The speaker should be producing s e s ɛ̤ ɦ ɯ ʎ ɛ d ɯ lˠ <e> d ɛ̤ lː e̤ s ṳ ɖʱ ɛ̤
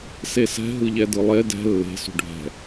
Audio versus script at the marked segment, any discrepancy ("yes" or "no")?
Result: no